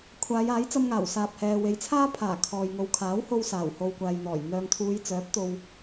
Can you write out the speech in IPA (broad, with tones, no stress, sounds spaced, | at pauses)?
kʷʰ aː˨˧ j aː˨˥ j t͡s ɐ˧ m ŋ aː˨˩ w s aː˨ p̚ h ɛː˨ w e˨˧ j t͡sʰ aː˥ pʰ aː˨˩ kʰ ɔː˨ j ŋ o˨ w kʰ aː˨˥ w h o˧ w s aː˨˩ w h o˨ w kʷ aː˨ j n̪ ɔː˨˩ j n̪ œː˨ ŋ t̪ʰ uː˨˧ j t͡s œː˨˥ p̚ t̪ o˧ w